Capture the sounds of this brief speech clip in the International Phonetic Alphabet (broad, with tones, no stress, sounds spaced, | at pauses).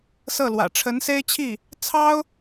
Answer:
s ɤ˥˩ l w ä̰˨˩ ʈ͡ʂʰ ə˧˥ n s e˥ ɪ̯ t͡ɕʰ i˥˩ | t͡sʰ ɑ˥ ʊ̯